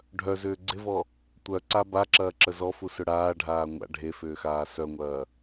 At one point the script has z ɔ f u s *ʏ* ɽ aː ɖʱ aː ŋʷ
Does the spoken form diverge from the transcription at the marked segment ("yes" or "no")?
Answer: no